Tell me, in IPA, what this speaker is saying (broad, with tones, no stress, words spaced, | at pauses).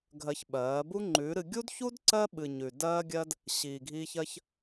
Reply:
ɡʱɜ˧çɓɜː˨˦ bu˦ŋ͡ǃʉː˨˦ɾɨ˧ ɡʲu˦dçu˦d ǀɜ˦ɓɨ˨ ɲʉ˨ dɜː˧ɡʲɜ˧d | ɕiː˨ɡʱiː˧çɜ˧ç